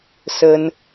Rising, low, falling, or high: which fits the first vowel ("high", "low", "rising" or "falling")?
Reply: high